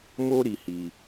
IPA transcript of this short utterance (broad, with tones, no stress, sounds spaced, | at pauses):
m o˦ ɾ i˧ h i˧